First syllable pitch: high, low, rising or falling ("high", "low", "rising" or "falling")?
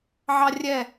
high